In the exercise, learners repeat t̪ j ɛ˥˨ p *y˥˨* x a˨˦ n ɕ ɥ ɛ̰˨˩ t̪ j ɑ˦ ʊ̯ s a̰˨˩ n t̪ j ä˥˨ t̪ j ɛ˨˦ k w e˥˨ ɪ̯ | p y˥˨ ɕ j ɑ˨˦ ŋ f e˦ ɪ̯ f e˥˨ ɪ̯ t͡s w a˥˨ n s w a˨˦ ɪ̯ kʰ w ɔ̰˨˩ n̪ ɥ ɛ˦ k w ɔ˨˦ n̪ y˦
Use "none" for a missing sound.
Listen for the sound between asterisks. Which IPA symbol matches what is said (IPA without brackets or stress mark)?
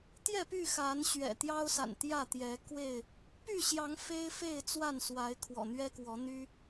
y˥˨